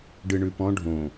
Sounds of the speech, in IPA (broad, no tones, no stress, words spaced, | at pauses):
ɖɨɳʉpɔ̃ ɖʱõ